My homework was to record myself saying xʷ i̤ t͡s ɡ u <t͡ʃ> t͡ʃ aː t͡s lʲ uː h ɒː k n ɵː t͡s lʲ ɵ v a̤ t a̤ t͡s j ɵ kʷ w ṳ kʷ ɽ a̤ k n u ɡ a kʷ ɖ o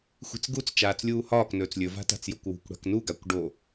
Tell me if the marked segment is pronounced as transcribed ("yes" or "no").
no